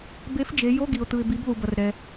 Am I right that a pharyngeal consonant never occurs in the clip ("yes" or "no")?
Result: yes